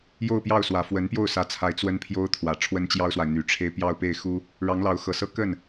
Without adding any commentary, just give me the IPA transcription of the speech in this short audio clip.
j o˥˧ ʊ̯ p j ɑ˥˩ ʊ̯ s w ä˨˩ f w ə˧˥ n p j o˥˩ ʊ̯ s ä˧˥ t͡sʰ a˧˥ ɪ̯ t͡s w ə˥ n pʰ j o˥ ʊ̯ t̪ʰ w ä˨˩ ʈ͡ʂʰ w ə˥ n t͡ɕ j ɑ˥ ʊ̯ s w a˨ ɪ̯ n̪ y˨˩ ʈ͡ʂʰ e˥ ɪ̯ p j ɑ˥˧ ʊ̯ p e˥˩ ɪ̯ x u˥ | ɻ ɑ˧˥ ŋ l ɑ˧˥ ʊ̯ x ɤ˨˩ s ɤ˥ k ə˥˩ n

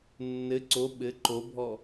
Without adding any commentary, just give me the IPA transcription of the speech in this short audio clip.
nː ɘ ǀ o ɓ ɘ ǃ o bʱ ɔ

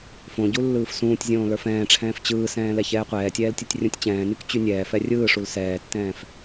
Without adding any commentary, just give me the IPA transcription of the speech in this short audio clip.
f õ ɟ u lː ɯː f s ũː tʲ zʲ õː l ə˞ f ɛ̃ː ʈ͡ʂʰ ɛ̃ː f t͡ɕ ɯː s ɛ̃ː l ɛ ç ɛː qʷ ɛː tʲ ɛː l tʲ u tʲ rʲ ũ tʲ t͡ɕ ɛ̃ː n y k t͡ɕ y nʲ ɛː f ɛ rʲ ɯː ʂ u l s ɛː tː ɛ̃ː f

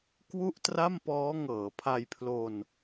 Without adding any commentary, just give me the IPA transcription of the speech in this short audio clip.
k w u˥˩ ʔ t r a˥˩ m p ɔː˦˥ ŋ ɤː˩˦ pʰ a˧ j pʰ l o˧ n

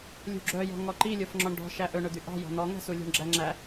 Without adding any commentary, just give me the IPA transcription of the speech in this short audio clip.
lʲ ṳ ɡ͡ǁ œ j ɔ̤ ŋ ɔ ǃ i lʲ o f ŋ͡ǁ ɔ ɳ ɖ ɔ̤ ʃ æ ʔ ɵ ɳ ɵ d̪ y ʔ ɑ̤ j ɔ̤ n̪ ɔ ŋ æ̤ s u lʲ ṳ ɳ ɡ͡ǁ æ ŋ͡ǁ æ

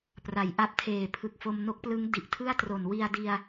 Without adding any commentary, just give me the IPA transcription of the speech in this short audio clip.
p r a˩˦ j ʔ a˦˥ p̚ tʰ eː˨˩ pʰ ɯ˨˩ k̚ f o˧ m n o˦˥ k̚ p l ɯ˦˥ ŋ d i˨˩ ʔ tʰ ɯ˥˩ a̯ t r o˨˩ n w i˧ a̯ d i˧ a̯

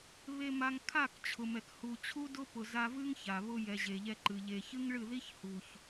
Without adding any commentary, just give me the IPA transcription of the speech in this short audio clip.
β e˧ m a˧ ŋ kʰ a˦˨ k t͡ɕʰ ʊ˨ m ɛ˨ k h u˨ t͡ɕʰ u˦ d ʊ˦ p ʊ˨ z a˧ v ɨ˦ ŋ ç a˨ β ʊ˧ j ɛ˨ ʑ e˨ ʎ ɛ˧ ǃ ɨ˨ ʎ e˨ ç ɨ˦ ŋ ɭ ɨ˦˨ ð i˦ ç h u˨ ç

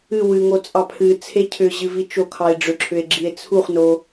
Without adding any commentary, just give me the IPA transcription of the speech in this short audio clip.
ɨ w ɨ ŋ o t͡sʼ ɑ pʰ ɨ t͡sʰ e cʰ ʏ ʑ ɨ v i t͡ʃ o kʰ ɑ e̯ ɖ͡ʐ ʏ ǁʰ ʏ e̯ ɡ͡ǁ i e̯ t͡sʰ u χ n o

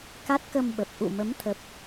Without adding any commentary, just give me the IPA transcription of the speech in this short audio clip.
k a˦˥ t̚ k ə˧ m ɓ ə˨˩ p̚ ʔ ṵ˧˨ m ə˨˦ m t̪ʰ ə˨˩ p̚

